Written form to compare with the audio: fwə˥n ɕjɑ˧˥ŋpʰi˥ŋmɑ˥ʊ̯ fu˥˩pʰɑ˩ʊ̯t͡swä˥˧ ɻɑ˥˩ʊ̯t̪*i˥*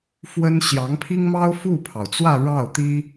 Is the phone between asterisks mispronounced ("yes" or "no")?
no